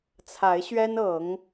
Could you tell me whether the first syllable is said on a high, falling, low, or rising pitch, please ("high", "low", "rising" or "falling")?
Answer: rising